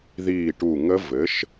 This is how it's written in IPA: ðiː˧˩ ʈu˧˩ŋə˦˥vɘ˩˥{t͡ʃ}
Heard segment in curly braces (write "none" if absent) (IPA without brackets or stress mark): ʃ